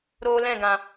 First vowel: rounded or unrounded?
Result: rounded